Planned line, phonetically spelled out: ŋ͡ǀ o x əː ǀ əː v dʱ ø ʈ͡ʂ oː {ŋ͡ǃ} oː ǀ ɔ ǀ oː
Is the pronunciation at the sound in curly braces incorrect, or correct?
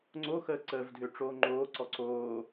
correct